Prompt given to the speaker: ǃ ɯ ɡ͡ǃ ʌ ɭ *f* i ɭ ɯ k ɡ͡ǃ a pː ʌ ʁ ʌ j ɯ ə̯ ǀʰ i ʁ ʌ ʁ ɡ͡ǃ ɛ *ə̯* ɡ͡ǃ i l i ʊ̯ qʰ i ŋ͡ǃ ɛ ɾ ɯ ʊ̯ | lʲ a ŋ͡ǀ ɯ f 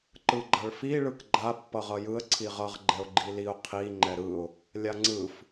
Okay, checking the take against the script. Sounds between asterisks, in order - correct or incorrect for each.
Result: correct, incorrect: ʊ̯

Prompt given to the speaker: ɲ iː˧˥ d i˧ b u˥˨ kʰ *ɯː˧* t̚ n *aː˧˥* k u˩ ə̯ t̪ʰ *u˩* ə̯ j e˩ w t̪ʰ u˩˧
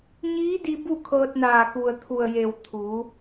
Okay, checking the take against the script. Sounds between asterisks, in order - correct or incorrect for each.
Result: incorrect: ɤː˧, incorrect: aː˧˩, correct

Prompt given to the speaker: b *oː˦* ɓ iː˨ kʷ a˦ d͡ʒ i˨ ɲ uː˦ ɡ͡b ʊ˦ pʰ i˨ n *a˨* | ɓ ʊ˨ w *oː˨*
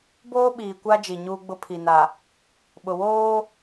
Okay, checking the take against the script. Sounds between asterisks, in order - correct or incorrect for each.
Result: correct, correct, incorrect: oː˦

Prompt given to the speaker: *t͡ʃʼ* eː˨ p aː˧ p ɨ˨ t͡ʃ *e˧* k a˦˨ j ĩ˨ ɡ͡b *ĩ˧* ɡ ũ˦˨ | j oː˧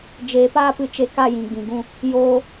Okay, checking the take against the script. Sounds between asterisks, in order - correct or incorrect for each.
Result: incorrect: d͡ʒ, correct, incorrect: ĩ˨

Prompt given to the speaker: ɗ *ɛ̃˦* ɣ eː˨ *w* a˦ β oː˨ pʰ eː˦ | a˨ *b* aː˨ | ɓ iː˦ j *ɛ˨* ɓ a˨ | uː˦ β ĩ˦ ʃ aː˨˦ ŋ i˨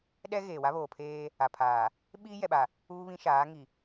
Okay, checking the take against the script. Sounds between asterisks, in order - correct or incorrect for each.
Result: incorrect: ɛ˦, correct, incorrect: pʰ, correct

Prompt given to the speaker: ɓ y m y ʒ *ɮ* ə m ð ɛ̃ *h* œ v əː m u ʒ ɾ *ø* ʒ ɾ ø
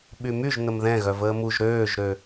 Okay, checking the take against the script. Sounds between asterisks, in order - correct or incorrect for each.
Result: incorrect: n̪, incorrect: ɣ, incorrect: øː

